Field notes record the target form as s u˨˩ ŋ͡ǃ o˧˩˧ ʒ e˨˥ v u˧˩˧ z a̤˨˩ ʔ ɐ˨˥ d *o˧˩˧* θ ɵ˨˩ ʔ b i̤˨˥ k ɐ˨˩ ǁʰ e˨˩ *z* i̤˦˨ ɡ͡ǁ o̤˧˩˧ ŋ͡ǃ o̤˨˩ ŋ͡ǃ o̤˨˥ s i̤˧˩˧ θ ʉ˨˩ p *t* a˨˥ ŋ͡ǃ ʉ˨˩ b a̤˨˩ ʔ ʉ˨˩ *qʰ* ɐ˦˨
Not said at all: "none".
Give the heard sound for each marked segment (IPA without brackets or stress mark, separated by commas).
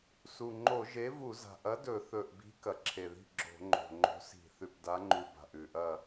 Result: ɵ˧˩˧, ð, d, ʔ